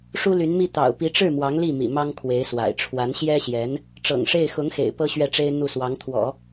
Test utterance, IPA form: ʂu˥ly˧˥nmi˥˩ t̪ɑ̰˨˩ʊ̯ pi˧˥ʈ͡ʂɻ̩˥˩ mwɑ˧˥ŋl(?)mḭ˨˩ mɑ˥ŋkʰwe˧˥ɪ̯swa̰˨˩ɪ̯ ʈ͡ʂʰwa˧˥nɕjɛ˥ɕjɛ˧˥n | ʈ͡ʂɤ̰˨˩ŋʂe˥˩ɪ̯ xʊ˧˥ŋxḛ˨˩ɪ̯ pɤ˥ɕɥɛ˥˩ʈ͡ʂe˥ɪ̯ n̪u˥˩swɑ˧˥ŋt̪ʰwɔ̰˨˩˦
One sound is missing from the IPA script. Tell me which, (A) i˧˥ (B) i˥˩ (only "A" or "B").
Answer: B